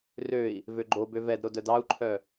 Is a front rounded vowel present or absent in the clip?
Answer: present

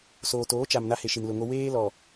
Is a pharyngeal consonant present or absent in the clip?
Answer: absent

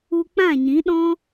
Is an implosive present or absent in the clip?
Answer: present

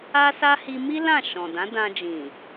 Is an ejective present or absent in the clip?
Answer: absent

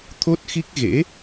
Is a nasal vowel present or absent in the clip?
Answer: absent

